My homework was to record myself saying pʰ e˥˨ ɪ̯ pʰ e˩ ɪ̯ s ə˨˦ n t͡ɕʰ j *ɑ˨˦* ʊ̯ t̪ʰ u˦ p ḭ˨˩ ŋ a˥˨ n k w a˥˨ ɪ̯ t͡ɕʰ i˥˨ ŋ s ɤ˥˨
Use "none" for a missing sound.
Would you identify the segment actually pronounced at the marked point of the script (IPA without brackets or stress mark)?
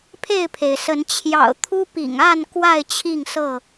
ɑ̰˨˩